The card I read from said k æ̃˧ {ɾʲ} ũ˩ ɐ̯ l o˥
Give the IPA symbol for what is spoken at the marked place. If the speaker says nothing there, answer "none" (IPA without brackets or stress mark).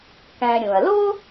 ɾʲ